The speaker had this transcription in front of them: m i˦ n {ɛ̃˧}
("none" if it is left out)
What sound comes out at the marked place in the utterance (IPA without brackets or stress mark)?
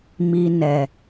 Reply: ɛ˧